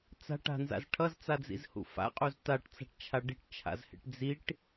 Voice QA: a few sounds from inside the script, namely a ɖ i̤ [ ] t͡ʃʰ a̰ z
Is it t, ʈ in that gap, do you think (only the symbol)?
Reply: ʈ